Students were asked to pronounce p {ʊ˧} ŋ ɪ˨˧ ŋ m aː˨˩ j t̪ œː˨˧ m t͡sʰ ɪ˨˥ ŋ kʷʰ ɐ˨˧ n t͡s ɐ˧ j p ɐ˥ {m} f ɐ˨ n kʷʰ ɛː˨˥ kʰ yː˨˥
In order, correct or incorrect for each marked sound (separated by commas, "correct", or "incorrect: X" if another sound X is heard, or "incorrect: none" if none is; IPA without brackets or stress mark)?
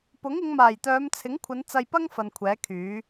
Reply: incorrect: ʊ˨˥, incorrect: ŋ